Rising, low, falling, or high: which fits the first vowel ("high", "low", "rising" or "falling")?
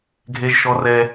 high